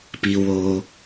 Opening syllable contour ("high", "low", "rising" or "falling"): low